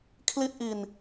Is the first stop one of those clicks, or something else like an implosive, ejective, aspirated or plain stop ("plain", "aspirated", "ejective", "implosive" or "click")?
aspirated